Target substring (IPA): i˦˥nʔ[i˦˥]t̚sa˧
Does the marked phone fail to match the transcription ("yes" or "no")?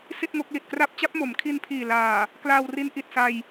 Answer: yes